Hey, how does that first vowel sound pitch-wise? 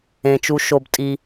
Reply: low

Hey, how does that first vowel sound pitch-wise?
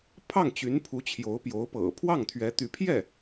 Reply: falling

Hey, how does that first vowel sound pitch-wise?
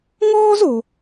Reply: high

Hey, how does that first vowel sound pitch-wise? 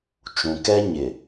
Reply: low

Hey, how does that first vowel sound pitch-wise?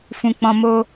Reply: low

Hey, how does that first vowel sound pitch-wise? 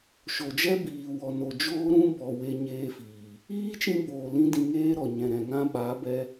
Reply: low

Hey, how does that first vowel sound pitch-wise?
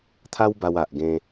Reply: high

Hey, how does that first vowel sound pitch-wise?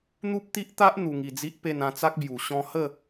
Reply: high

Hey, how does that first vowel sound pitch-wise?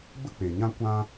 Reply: high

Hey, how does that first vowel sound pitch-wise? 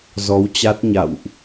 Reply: rising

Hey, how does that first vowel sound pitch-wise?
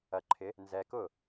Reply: low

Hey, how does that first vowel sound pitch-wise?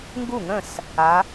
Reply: falling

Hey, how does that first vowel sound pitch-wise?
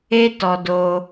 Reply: high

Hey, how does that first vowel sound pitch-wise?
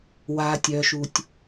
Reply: low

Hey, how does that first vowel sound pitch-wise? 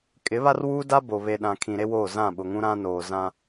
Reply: rising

